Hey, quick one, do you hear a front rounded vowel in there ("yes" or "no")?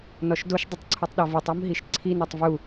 no